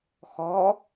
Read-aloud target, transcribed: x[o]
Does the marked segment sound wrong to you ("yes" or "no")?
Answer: yes